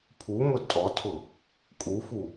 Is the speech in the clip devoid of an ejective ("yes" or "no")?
no